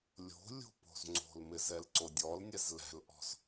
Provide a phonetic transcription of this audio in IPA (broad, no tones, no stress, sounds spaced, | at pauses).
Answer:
lʲ o̤ lʲ o̤ p o̤ z ŋ͡ǀ o̤ l m ɪ z ɛ l ǀ o dʲ ɔ l nʲ ɛ z l ɛ̤ l ʔ ɔ̤ z